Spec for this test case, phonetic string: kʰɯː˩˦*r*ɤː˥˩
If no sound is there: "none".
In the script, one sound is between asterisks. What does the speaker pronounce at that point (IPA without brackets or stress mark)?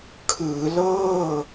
l